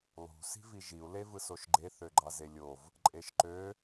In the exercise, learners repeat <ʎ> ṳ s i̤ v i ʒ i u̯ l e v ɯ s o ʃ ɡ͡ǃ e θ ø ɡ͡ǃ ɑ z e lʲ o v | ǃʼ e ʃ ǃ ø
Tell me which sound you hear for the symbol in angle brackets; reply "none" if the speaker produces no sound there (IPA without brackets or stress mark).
lˠ